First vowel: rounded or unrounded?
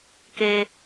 unrounded